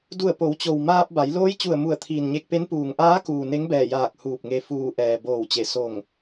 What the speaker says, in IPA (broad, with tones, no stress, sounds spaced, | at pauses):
d u˧˩ ə̯ p o˩˧ w t͡ɕ o˩ w m aː˧ p̚ b a˩˧ j l oː˧˥ j t͡ɕ u˧˩ ə̯ m u˧˩ ə̯ t̪ʰ iː˩ n ɲ e˧ k̚ p e˧˥ n p uː˩ ŋ ʔ aː˧˥ k uː˩ n e˧˥ ŋ b ɛː˧˩ j aː˧˩ k̚ h uː˧˩ p̚ ŋ e˧ f uː˧˩ ʔ ɛː˩ b oː˧˩ w t͡ɕ e˧˩ s o˧˩ ŋ